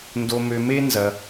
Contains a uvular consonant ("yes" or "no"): no